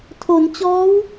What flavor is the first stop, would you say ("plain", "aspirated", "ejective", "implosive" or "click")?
aspirated